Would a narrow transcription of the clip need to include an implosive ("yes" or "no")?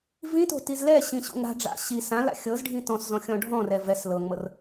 no